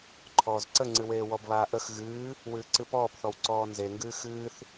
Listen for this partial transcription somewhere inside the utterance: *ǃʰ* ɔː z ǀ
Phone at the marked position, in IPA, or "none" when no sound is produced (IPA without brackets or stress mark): ǃʰ